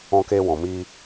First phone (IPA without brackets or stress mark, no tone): ɔ̃